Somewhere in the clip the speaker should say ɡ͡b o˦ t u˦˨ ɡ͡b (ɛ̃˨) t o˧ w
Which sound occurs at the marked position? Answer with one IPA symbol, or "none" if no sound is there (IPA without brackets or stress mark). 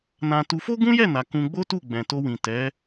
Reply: ɛ̃˨